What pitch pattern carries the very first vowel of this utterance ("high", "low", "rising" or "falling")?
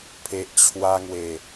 low